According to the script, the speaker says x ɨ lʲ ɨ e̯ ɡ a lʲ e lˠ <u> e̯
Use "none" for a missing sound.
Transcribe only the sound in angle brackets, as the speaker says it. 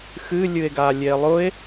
ʊ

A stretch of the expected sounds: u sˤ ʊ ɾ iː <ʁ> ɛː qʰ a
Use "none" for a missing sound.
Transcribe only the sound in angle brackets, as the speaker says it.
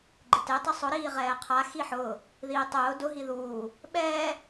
ʁ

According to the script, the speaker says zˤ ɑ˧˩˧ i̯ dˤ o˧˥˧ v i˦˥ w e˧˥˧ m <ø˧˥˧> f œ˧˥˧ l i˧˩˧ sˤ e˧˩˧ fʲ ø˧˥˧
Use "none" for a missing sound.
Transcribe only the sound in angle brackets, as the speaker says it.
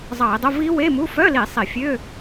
u˧˥˧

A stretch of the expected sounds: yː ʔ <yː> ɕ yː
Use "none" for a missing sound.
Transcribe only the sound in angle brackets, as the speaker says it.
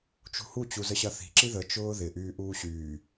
uː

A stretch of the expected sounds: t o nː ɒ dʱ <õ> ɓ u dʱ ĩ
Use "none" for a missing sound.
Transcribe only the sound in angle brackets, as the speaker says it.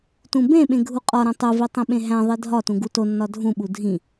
ũ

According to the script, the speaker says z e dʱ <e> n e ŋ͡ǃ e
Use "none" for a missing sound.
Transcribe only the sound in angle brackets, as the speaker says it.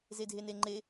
e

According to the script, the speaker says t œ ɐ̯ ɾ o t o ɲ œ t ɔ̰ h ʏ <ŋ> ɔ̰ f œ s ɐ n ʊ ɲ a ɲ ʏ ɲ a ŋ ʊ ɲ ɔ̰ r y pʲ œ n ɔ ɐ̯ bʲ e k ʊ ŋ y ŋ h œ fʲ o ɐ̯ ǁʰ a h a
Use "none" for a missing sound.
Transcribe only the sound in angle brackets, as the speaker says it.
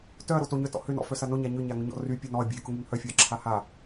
n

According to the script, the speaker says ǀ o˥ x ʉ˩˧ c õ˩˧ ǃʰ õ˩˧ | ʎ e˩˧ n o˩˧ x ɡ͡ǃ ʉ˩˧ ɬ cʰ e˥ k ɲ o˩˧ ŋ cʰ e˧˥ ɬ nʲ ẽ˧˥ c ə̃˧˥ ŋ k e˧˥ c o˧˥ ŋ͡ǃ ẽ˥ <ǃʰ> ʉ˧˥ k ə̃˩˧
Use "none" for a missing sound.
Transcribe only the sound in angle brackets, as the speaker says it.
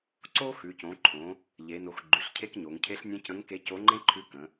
ǃʰ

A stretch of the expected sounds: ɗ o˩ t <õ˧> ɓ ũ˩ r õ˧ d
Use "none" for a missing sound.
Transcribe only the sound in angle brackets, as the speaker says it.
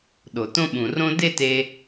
õ˧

